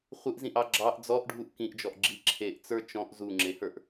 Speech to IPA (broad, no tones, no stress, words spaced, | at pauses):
χʷɪʔzĩʔɑ ɡ͡ǁɑʔ d͡zɔʔɖʱuʔ kĩʔd͡ʒɔʔ ɡ͡ǁi ǁʰeʔt͡sə˞ t͡ʃɔ̃ʔ zuŋ͡ǁehə˞ʔ